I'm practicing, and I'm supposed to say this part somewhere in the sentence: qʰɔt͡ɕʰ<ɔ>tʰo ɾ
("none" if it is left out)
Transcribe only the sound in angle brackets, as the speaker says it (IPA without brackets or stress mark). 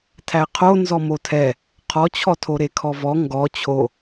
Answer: ɔ